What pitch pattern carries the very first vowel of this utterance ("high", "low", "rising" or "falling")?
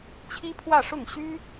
high